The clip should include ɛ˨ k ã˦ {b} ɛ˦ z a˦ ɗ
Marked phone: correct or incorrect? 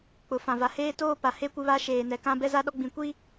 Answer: correct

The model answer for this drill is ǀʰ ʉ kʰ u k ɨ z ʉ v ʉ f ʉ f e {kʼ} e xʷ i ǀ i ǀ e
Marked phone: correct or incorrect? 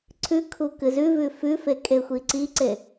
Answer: correct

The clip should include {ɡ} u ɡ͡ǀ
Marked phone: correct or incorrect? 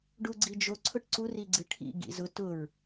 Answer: incorrect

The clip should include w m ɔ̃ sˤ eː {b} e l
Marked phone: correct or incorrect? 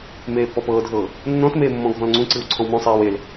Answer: incorrect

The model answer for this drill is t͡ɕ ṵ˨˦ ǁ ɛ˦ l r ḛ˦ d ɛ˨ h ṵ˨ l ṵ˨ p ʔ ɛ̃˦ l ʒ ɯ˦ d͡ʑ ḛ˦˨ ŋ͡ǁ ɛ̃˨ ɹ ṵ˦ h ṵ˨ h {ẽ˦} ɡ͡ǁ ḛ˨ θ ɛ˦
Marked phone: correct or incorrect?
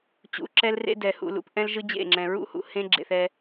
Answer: correct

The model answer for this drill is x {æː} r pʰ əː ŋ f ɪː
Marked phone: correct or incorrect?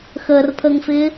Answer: incorrect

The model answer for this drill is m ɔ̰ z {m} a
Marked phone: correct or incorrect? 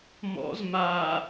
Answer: correct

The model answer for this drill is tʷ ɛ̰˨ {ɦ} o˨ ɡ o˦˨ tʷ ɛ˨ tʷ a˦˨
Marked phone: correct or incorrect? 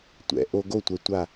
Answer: incorrect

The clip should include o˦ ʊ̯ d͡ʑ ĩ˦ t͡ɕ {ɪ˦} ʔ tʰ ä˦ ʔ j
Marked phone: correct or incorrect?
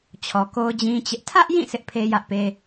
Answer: correct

